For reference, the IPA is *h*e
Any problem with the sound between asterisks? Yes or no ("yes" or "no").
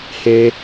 no